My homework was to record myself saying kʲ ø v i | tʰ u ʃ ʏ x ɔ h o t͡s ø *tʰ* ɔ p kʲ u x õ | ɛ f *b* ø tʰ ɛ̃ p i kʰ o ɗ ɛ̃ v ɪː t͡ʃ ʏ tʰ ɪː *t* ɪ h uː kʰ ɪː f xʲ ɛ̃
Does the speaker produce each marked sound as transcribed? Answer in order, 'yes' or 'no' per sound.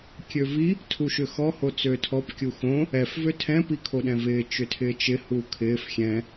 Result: yes, no, no

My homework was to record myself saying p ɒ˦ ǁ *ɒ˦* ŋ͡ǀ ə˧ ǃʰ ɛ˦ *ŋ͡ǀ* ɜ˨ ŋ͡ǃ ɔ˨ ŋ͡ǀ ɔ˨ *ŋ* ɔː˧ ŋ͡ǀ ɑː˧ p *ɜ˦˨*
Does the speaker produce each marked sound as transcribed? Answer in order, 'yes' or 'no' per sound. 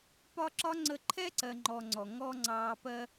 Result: yes, no, yes, no

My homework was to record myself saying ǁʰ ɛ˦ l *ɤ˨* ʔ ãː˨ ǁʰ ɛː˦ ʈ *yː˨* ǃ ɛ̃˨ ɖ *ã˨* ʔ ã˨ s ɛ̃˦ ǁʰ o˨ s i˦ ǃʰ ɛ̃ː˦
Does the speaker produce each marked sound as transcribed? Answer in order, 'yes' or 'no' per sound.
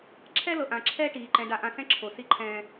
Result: yes, no, no

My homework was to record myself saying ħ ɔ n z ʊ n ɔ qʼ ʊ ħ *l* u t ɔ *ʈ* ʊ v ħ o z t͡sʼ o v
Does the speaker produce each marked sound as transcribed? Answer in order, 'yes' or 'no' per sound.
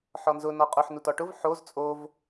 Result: no, yes

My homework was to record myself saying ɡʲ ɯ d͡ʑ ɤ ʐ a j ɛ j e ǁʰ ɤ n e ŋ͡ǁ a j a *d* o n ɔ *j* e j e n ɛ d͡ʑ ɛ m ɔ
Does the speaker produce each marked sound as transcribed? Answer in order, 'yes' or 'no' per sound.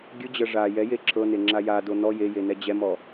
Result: yes, yes

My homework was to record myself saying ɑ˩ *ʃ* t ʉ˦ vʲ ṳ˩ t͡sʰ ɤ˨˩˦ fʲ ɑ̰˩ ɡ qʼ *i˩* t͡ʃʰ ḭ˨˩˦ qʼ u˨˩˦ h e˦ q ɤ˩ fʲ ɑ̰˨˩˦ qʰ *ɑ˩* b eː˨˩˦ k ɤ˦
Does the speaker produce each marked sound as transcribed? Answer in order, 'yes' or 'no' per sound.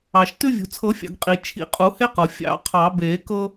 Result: yes, yes, no

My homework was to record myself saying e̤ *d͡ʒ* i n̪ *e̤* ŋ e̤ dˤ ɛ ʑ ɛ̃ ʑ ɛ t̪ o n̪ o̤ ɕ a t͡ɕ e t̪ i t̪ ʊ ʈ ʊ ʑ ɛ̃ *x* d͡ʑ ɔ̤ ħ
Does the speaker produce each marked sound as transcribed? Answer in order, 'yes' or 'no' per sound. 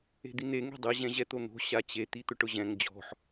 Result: no, no, no

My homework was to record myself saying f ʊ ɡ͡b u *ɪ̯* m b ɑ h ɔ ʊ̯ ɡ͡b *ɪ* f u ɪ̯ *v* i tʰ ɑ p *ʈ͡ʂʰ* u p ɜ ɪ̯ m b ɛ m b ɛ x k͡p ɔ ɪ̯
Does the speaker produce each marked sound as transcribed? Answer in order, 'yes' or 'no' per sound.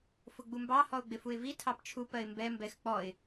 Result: no, yes, yes, no

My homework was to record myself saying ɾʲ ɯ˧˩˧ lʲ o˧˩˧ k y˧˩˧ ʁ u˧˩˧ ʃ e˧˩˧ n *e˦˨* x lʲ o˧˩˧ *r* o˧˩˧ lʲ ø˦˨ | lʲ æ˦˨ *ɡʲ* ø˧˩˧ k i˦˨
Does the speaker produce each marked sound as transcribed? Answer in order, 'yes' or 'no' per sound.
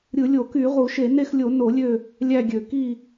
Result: yes, no, yes

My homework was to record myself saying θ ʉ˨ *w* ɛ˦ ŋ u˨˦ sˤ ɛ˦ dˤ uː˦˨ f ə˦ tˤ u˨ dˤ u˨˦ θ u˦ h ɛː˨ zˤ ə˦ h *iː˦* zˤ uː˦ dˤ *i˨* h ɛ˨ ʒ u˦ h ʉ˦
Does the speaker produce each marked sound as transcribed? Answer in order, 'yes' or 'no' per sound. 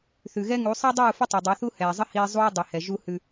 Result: no, yes, yes

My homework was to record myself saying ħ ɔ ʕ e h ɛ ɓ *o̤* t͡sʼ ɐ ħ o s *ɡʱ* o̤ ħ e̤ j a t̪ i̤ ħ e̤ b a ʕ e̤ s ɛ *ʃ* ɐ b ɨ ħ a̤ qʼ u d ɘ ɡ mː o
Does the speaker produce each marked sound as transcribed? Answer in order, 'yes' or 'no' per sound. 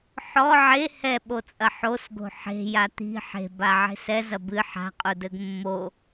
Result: no, no, no

